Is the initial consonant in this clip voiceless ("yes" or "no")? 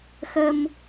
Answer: yes